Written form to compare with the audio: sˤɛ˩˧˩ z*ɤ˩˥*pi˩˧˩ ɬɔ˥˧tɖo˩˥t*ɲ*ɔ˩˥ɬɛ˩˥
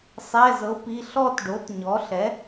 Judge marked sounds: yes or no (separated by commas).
yes, yes